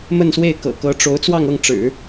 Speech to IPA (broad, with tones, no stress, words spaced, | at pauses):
mə˥˧nswe˥˩ɪ̯kɤ̰˨˩ kɤ˧˥ʈ͡ʂo˧˥ʊ̯ t͡swɑ˥˧ŋɤ˥˩ŋ ʈ͡ʂɻ̩˨˩˦